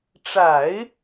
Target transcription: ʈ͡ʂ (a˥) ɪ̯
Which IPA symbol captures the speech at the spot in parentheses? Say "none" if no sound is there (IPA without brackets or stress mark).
a˨˩˦